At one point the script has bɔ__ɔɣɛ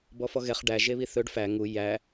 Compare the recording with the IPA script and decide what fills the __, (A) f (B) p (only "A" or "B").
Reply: A